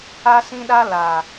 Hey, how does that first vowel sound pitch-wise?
high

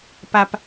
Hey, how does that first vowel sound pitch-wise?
low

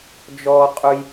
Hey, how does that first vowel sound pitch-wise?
high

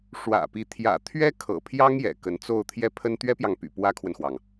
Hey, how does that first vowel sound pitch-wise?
low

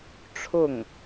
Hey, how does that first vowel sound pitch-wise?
falling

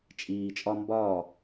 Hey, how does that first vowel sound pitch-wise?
low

